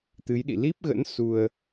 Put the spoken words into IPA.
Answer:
t̪ɨ˨˦jɗḭ˧˨ li˦˥p̚ɣə̰˧˥n su˧ə̯

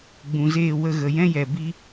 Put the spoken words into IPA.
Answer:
ɡ͡bũ˨zeː˦˨wə˦˨ ɣə˨jɛ̃˦jɛ˨ bi˦

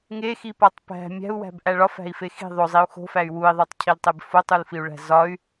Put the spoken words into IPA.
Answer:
ŋexipɒtˤ pæ̤ mʲæ̤u̯wæ̤bʔæ ɭɒfæ̤i̯fe xi̤ ðˤozˤiu̯ xo̤fæy̯ wui̯ðˤotˤcʰiltˤeb fotˤulfiu̯ɭæ̤ zɒy̯

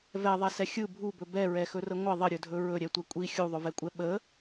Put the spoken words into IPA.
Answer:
vɛðˤɛsɛ xʲɯ bʱubɵ bɛɹɛxɵrə ŋʷə ðˤəɾʲɵdʱɵ ɹɵɾʲɛtʷɛ kʷʼi xʲuðˤʊvɛkʷʼɛ ɓə

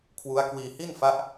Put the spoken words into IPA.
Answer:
kʰwu˦˥a̯kwiː˧hi˥˩nfa˦˥ʔ

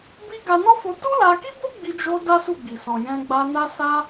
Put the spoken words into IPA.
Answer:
bi˦ ɡa˧nɔ˦fo˧ tu˦la˧ki˦bo˦ ɡ͡bi˧d͡ʒo˧ da˦su˦˨ɡ͡bi˨ sɔ̃˨ jɛ̃˧ɡ͡ba˧ na˦sa˦

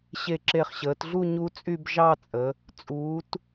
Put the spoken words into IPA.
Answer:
ɕe˧˩ǁe˧˩χɕəː˩˧tɮu˥˧ ɲu˦˥t͡sʼy˥˧b ʒɑ˥˧t͡sʼə˩˧ | t͡sʼuː˩˧t

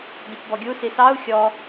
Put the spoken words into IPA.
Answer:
dʲɔpbɔɡʲu sisɑu̯ xʲɔ

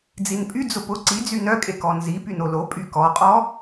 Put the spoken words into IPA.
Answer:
d͡zinpʼy d͡zʊpʊ ǀi d͡zynœkʼekɔ nzi pynolo pʼykɔqʼɔ

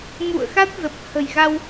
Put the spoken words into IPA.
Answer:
mṵ˧˨ə̯xa˦˥t̚ zə˨˩p̚hə̤˨˩jɣa˧w

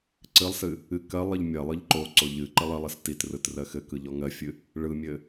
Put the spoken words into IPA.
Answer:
ǀɨlˠsɨ | ɨ kɜlˠ ɨʎmʲɜlˠɯʎ ǃoǀo ʎɨ ǃɨlˠɘlˠɨs titrɯt rɜxɘkɯ ʎɔŋɜfʲɨ | ɭɯmʲɘ

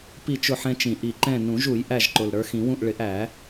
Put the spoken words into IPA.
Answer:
pi˥˨t͡ʃʊ˥˨ħɛ̃˦t͡ʃĩ˨˩˦ ʔi˨˩ǃɛ̃˥˨ nũ˨˩˦ʒu˨˩˦j ʔæ˥˨ʒǃʊ˨˩l ɾə˞˨˦xĩ˨˩˦wũ˥˨ʔ ɭɪ˨˩˦ʔæ˨˩˦

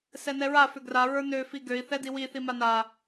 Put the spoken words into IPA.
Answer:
sɛnɛɹa fʏɡra ɹə˞nø fiɡøi̯ θɛdiwi θimana

